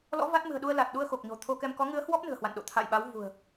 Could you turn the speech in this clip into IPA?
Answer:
l ɔ̰˧˥ v a˦˥ t̚ m ɨ̤˨˩ ə̯ ɗ u˧ ə̯ l a˨˩ t̚ ɗ u˧ ə̯ x o˨˩ k̚ ɲ o̤˨˩ t̪ʰ o˧ k ɛ˧ m k ɔ˨˦ ŋ ɨ˨˦ ə̯ h w ɔ˦˥ p̚ n ɨ̤˨˩ ə̯ h w a̰˧˨ n ɗ o̰˧˨ t̪ʰ a̰˧˨ j ɓ a˨˦ w v ṳ˨˩ ə̯

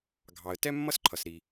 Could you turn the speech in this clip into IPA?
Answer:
ɡʱ ɑ˩ ə̯ t ɛ˥ mː ʌ˥ s ǃʰ ʌ˩ s ɾ i˩

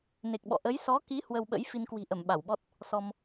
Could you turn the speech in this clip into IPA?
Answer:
n e˨˩ k̚ ɓ ɔ̰˧˨ ʔ ə˨˦ j s ɔ˨˦ k i˨˦ h w ə˧ w ɓ ə̰˧˥ j f i˧ n k w i̤˨˩ ʔ ə˧˩ m ɓ a˧˩ w ɓ ɔ˦˥ t̚ | s ɔ˧ m

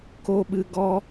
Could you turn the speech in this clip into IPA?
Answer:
k o˦ ɓ ɨ˧ ɡ ɔ˧

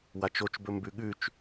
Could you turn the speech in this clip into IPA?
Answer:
w a t͡ʃ o t͡ʃ b ɵ m b ʉ ɠ ʉ t͡ʃ

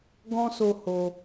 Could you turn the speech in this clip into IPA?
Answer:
ɡ ɔ̃˦ s o˧ h o˧

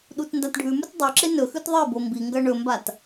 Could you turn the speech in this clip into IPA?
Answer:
ɗ u t n d a t ɖʱ ʉ m ʉ t dˤ ɵ ǁ e n ɵ x ʉ t ðˤ i b o m b i ŋ ɡ ɐ ɳ ɵ m b a t

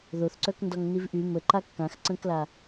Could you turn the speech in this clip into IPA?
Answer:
ð o θ ǀ œ k n d ɔ ŋ n i v ʔ y m ə ǃ a kː ã x ǀ ə̃ː k l a

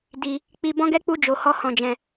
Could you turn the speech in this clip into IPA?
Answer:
d i˧ | k͡p i˧ b ɔ̃˦ ɡ ɛ˦ k͡p u˦ d͡ʒ o˧ h ɔ˦ h ɔ̃˧ d͡ʒ ɛ̃˧

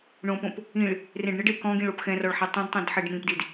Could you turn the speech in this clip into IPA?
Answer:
ɳ õ p õ p | ĩ ɭ | r ẽ ɖ ɳ ɪ ɖ e k ɔ̃ ɡ ĩ ɭ o p x ɛ̃ r ɔ ɭ ħ ɛ tˤ õ d tˤ õ d ħ ɛ ɖ m ĩ p d i d

